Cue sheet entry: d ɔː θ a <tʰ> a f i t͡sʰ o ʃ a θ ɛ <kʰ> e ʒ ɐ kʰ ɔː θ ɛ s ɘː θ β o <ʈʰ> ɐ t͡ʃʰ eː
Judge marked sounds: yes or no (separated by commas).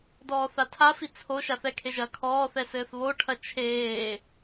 yes, yes, yes